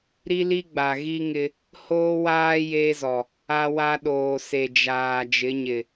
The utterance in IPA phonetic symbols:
ɾi˦li˦ ɡ͡ba˨ɣi˦ŋɪ˦ | hoː˦waː˦ jeː˦zɔ˨ | a˦wa˦ɗoː˨ se˨ d͡ʒaː˨ d͡ʒɪ˨˦ɲɪ˨

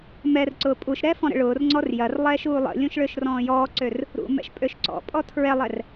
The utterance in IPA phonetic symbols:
mɛr ǀʊːpʼuʃɾɛː fɔ̃ɾə̰ɭʊːrŋ͡ǀɔr jɐrlˠɛːʃ uːlˠə̰lʲũʃ ɭøʃrɔ̃ːjɔːǀør | ɾṵmɛ̰ʃ pʼøʃǀɔ̰pʼɔ tʰɹɛlˠɛr

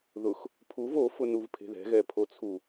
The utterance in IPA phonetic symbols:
ðʊx | pʰuv ofʊnuv pʰe̤ðɛ̤ɣɛ pʰot͡sʰu

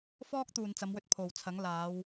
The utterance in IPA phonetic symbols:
fɔː˥k̚ t̪uː˨n t͡sɐ˨˧mwɵ˧t̚ pʰo˨wt͡sʰɐ˨˥ŋ laː˨˧w

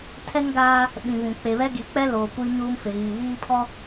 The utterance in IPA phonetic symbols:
tʰɛ˦ŋɡaː˦ | ɓĩ˨vũ˨ k͡pe˨βɛ˦ɡi˨˦k͡pɛ˦ loː˨kʷiː˦ ɲuː˦mfɪ˨ɣiː˨ βiː˦pʰɔ˦

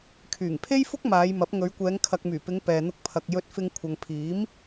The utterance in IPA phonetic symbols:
kʰyː˨˩ŋpʰe˥jfʊ˥k̚ maː˨˧jmɐ˨˥p̚ ŋɵ˨˧ɥkʷɛː˨˧ŋ kʰɐ˨k̚myː˨˩ pɪ˨˧ŋ pɛː˨n̪ʊ˧k̚ pʰɐ˨k̚ jɵ˧t̚ fɪ˧ŋ kʷʰɐ˨ŋ pʰiː˨˥m

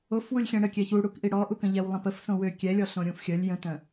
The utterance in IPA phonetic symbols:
ofwulʲ xʲɛ̃ɽəkʲɛ çuɽukʔi ɽɔʔu kə̃ʎɛwlˠə̃pəf sõwø kʲɛlʲɔ ɬõɾʲũfxʲəlʲ jə̃tœ̃

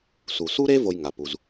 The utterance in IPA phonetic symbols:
su˩su˥ ɾe˥ vo˥jŋa˧pu˧z

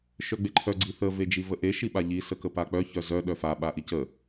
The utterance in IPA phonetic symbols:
ʃœɡ͡beǃʰœ ɡ͡ǀiθə ved͡ʒivəʔe ʃiɓaʎi səkəpak͡pœ çœzœ ɗœfa ɓaʔicə

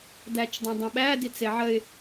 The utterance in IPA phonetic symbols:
dæt͡ʃdˤə̃dˤə̃ɓæ dit͡seʕəɪ̯

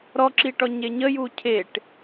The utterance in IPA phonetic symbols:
ɾɔǁiʈɔ ɲeɲəju cʰeʈ

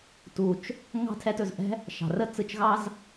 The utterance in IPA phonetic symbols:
tu˨t͡ʃ | ŋɑ̤˦tʰɛ˧tɵ˨zʔɛ̤˦ | ʃɑ̤˨rə˦t͡sɯ˧t͡ʃɣɑ˦z

